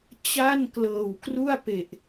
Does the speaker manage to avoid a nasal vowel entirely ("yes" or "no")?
yes